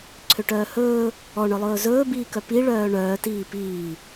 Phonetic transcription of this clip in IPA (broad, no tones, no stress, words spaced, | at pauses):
ǀʰøʈœːhɵː | ɔɳœlˠɵː zɵːbiːkœ piɭœː ɳœːtiː piː